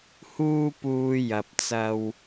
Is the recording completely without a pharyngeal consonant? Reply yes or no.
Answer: yes